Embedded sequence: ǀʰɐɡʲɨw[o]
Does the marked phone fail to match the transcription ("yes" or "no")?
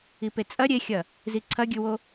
no